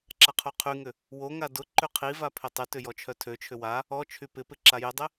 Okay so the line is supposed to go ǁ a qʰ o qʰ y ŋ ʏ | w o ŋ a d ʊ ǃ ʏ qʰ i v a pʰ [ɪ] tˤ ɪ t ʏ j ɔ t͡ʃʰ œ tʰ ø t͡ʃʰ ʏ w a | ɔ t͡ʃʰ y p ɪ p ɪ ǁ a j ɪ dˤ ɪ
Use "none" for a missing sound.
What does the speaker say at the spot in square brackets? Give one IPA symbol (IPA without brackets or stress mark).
ɪ